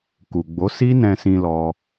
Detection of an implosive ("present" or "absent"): absent